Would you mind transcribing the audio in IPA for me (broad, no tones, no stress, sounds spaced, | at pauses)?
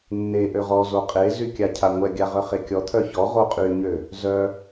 nː e ʔ ø ʁ ɔ z o qʼ e z y kʲ a cʰ a ŋʷ ɛ ɡʲ a ʁ œ χ e kʲ ɔ t̪ʰ œ ç ɔ ʁ o qʼ y ɲ ø | z œ